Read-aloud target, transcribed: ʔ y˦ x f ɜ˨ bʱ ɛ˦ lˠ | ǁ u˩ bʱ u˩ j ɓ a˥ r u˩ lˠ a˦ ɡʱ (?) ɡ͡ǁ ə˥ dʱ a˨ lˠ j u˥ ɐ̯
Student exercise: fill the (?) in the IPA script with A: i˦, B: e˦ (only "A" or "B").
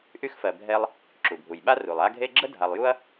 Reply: B